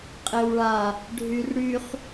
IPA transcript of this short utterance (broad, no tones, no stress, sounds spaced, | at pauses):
qʼ e w ɭ a | ɖʱ y r ɽ y χ